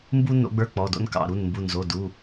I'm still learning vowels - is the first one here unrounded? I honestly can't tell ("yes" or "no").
no